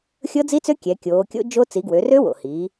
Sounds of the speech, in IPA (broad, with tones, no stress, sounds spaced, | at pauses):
xʲ ɤ˦˥ d͡z i˦˥ t͡s ø˦˥ kʲ ɛ˩˧ kʲ oː˩˧ kʲ o̰˦˥ d͡ʒ o˦˥ t͡s i˩˧ ɡ w ø˩˧ r ø˦˥ w o̰˩ h i˩˧